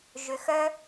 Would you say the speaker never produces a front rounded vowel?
no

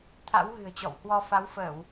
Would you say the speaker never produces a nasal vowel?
yes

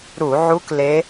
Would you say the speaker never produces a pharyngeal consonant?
no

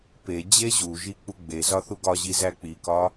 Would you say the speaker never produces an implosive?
yes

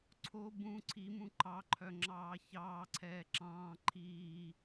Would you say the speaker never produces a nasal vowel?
no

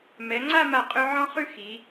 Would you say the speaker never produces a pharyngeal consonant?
no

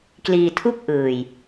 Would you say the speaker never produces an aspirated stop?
no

